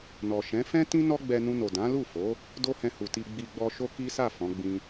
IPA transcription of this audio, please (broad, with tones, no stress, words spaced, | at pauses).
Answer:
nɔ˨ʃɛ̃˨˦ fɛ̃˦tĩ˦ nɔ˦ɡ͡bɛ˧nũ˧no˨ dã˨˦lu˦˨fo˨˦ | do˦hɛ̃˧hu˨ti˧ ɡ͡bi˧ɡ͡bɔ˦ ʃo˦ki˦sa˦˨ fɔ̃˨˦ɡ͡bĩ˦